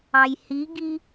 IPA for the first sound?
ɑ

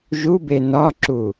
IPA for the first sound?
ʒ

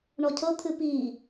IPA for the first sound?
ɳ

